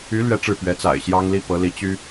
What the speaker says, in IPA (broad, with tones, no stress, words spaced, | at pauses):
y˧˥ lɥɛ˥ʈ͡ʂɻ̩˥˩ pɥɛ˧˥t͡sa̰˨˩ɪ̯ɕjɑ˥ŋli˥ pɤ˧˥li˧˥ t͡ɕy˥